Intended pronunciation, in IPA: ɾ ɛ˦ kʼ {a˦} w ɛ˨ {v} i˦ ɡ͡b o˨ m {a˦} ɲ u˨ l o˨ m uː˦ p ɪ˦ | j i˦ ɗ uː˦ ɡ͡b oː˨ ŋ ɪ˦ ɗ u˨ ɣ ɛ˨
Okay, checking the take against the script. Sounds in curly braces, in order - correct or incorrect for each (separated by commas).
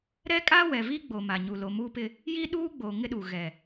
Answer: correct, correct, incorrect